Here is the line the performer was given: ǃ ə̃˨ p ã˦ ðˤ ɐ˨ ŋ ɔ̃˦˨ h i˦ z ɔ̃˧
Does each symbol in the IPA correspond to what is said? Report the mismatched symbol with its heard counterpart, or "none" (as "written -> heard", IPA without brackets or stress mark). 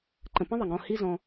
ã˦ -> ə̃˦